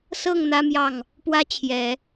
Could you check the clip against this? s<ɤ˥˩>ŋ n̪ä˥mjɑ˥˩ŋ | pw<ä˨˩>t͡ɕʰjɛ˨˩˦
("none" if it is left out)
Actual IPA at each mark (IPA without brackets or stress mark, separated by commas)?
ɤ˥˩, ä˥